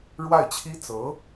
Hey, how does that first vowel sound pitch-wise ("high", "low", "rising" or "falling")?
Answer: falling